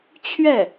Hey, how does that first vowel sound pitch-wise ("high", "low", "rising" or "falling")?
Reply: falling